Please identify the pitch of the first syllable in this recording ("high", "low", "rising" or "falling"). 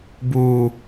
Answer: high